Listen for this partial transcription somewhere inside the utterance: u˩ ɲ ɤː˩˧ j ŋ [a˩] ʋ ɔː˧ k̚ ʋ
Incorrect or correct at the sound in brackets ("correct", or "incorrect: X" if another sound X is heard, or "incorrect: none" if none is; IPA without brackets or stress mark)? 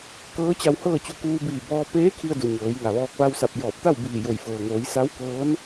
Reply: correct